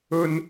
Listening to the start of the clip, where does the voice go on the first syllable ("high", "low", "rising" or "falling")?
high